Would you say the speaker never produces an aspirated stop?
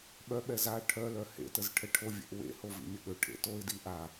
no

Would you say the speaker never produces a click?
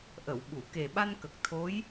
yes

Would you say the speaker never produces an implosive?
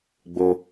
yes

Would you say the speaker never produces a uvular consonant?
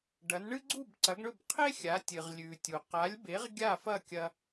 no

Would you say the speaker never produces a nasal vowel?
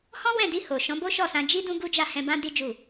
no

